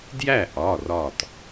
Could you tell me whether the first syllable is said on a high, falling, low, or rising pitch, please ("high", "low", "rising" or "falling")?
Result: falling